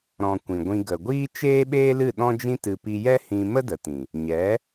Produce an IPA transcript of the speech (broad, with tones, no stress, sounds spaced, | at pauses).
ɾ ɔ̃˨ kʷ ĩ˨ ɡʷ ĩ˧ ɡ ə˨ ɡʷ iː˦ t͡ʃ eː˦ ɓ eː˦ l ɨ˦˨ ɗ ɔ̃˦ d͡ʒ ĩ˦ t ɨ˧ p i˧ j ɛ˦ h ĩ˧ m ə˦ d ə˨ t ĩ˨ | ɲ ɛ˨˦